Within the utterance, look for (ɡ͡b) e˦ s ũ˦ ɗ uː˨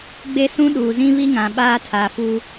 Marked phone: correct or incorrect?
correct